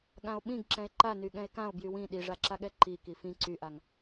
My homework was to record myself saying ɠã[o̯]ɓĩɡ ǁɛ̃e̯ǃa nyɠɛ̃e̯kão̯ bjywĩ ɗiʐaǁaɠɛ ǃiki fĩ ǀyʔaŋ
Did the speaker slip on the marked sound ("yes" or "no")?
no